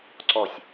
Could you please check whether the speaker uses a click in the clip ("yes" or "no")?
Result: yes